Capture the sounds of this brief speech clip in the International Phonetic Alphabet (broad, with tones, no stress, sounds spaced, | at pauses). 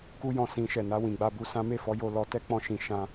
k u˦ j ɔ̃˦˨ s ĩ˧ ʃ ɛ˨ n a˧ w ĩ˨ ɡ͡b a˧ b u˧ s ã˦ m e˦˨ f ɔ˨˦ j o˦˨ l ɔ˨˦ t ɛ˦ k͡p ɔ̃˦˨ ʃ ĩ˧ ʃ ã˦